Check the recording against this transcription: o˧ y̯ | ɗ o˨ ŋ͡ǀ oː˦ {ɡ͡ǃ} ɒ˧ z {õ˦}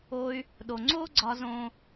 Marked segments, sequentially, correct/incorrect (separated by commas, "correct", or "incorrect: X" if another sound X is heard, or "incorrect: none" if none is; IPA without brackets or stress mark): incorrect: ɡ͡ǀ, correct